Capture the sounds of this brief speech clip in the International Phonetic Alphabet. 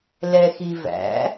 l ɛ x i v æ̰

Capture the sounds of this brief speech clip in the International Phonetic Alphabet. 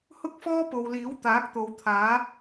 h ʊ˥ k̚ f ɔː˥ p o˨ w l iː˨˥ w t̪ aː˨˥ k̚ t̪ o˨ w t̪ʰ aː˨˥

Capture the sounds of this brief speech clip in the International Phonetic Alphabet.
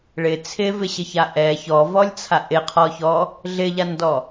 ɭ ɪ t͡sʰ ɪ v ɪ ɕ ɪ ç a ʔ ɛ ç ɔ v ɔ lʲ t͡sʰ a ʔ ɪ qʰ ɔ ç ɔ | ɮ ɪ ʎ a n d ɔ

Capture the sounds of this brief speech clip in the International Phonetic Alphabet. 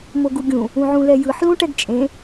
m o ɡ u ɡʲ ũ | ũ ʕ ũ l ɛ j ɯ ħ l ũ ʈ ɛ ɡ t͡ʃʼ ẽ

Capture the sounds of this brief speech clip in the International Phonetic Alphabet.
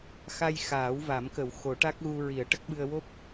x a˧ j x aː˨˩˦ w v a˨˩˦ m k ə˨˩˦ w x o˨˩˦ ʈ a˦˥ k̚ ɣ u˧ ɹ i˨˩˦ ə̯ ʈ ə˦˥ k̚ ɓ ɨ˧ ə̯ w o˦˥ p̚

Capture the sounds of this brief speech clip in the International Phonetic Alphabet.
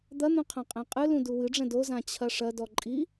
d̪ ɐ n̪ ũ qʰ ã qʼ ɛ̃ qʼ ɨ l ũ d u w ɨ ɖ͡ʐ ɛ̃ d o z ã t͡ɕʰ ɐ ʂ ɐ d ɔ ǃʼ i

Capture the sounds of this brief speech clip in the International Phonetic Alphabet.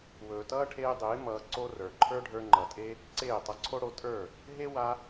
w ɵː˨ t ʌː˦ ʈʰ eː˧ dˤ eː˨˦ m ʌː˧ ǀ o˦ r ə˞˨ ǃʰ ə˞˦ ɖʱ ə˞˧ ŋ͡ǃ ʌ˨ tʼ e˦ | ǀ eː˦˨ tˤ ʌ˧ ǀʰ o˦ ɽ o˧ tʼ ə˞˦˨ | ɦ e˦ w a˧

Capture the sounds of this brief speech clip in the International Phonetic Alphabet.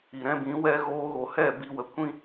i˨ ɾ ɛ̃˧ b ĩ˨˦ w ɛ˧ ɣ oː˧ ɣ o˨ h ɛ˦˨ b i˧ w ə˧ kʷ ĩ˦

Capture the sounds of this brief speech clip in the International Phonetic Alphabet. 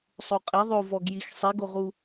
sˤ o qʼ e ðˤ o v ɔ ɡ j i x sˤ i ɡ o ʁ u

